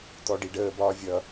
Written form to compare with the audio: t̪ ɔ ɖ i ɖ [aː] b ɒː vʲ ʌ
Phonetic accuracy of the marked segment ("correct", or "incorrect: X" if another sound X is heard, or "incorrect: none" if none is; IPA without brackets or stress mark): incorrect: əː